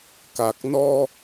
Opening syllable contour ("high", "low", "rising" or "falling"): low